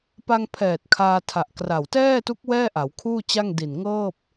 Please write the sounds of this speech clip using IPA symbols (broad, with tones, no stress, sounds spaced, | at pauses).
p a˧ ŋ pʰ ɛː˨˩ t̚ kʰ aː˧ tʰ a˨˩ ʔ k r a˨˩ w t ɛː˥˩ t u˦˥ k̚ w ɛː˥˩ ʔ a˩˦ w kʰ uː˥˩ t͡ɕ a˥˩ ŋ d i˨˩ n ŋ ɤː˥˩ p̚